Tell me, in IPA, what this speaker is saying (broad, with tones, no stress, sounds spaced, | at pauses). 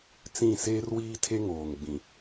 t͡s ĩ˦˨ s eː˦ r w iː˦ tʰ e˦ ŋ oː˨ ŋ ɡ͡b ĩ˨